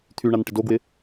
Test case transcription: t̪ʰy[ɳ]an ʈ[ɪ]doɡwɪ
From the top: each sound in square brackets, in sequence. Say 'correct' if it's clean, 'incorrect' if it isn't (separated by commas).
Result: correct, correct